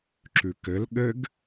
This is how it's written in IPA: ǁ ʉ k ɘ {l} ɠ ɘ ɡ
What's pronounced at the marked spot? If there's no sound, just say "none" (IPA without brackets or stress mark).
l